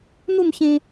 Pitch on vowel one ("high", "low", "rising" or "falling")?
falling